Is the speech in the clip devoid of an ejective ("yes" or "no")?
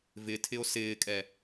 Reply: no